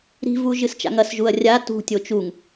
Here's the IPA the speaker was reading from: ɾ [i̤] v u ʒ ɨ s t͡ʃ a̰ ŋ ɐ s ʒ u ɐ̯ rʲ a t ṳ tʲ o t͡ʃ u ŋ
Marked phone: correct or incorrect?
correct